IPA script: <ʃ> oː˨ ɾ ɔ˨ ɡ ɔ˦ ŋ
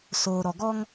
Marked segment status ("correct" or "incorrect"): incorrect